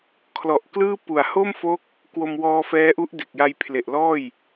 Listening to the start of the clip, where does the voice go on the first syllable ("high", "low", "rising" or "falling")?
low